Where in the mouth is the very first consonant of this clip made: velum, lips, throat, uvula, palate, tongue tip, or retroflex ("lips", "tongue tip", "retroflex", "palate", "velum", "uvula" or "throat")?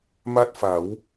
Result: lips